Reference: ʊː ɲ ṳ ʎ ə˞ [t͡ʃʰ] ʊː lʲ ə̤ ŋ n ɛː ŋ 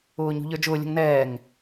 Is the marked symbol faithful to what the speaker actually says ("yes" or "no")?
no